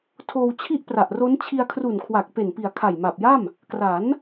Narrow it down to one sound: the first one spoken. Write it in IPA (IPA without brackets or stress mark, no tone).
tʰ